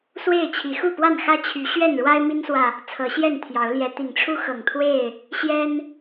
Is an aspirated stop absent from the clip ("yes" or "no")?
no